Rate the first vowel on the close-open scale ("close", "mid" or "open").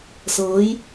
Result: mid